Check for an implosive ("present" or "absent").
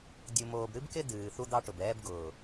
absent